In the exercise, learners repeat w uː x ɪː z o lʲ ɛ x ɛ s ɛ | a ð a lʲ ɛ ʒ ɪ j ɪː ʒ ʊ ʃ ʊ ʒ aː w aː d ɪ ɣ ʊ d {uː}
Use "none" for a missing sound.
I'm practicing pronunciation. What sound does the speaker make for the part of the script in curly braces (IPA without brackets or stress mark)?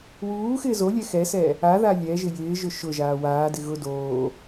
oː